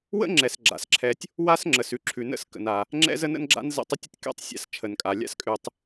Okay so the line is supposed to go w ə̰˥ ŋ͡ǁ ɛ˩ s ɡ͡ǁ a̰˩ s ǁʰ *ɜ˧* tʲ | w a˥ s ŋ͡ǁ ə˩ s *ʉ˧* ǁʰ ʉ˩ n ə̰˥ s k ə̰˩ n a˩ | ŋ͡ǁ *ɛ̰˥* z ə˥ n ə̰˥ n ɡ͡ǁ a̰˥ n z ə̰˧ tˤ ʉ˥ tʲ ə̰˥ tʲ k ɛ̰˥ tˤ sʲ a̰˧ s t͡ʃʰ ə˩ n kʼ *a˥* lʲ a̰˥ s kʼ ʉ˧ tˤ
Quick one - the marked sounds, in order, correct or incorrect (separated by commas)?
incorrect, correct, correct, incorrect